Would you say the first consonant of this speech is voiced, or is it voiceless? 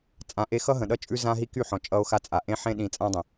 voiceless